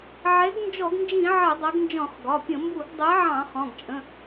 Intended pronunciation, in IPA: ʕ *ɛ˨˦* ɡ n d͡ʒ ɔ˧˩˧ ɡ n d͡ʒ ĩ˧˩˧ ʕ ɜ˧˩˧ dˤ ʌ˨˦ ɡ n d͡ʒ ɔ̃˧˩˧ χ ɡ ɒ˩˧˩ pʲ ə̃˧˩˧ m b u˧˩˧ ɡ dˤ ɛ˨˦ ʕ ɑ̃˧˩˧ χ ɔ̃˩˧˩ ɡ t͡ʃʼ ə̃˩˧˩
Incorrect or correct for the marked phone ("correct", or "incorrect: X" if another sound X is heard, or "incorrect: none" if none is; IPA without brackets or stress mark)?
correct